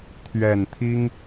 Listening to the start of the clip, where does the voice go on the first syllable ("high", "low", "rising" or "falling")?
low